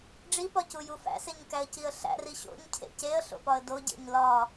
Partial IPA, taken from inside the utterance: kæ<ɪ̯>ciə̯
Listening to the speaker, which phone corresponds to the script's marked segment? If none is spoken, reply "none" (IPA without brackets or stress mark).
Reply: ə̯